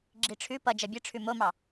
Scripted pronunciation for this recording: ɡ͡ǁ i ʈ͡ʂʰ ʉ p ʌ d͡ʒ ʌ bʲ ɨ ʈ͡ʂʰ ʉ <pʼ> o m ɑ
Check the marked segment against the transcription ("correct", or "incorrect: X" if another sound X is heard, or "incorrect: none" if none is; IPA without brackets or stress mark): incorrect: m